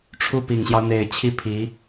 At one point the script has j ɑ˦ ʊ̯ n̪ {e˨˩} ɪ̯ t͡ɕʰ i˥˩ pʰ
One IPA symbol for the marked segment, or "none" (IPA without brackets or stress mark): e˨˩